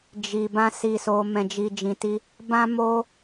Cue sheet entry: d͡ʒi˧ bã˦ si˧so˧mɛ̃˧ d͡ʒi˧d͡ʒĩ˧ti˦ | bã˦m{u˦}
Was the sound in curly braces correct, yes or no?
no